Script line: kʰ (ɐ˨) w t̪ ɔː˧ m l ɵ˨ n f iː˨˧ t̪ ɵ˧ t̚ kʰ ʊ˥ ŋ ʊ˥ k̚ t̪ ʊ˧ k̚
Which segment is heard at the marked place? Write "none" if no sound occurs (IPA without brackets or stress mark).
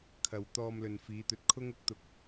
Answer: ɐ˨